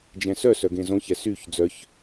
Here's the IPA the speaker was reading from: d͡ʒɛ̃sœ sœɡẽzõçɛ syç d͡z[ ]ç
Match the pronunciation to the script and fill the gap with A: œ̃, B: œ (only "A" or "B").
B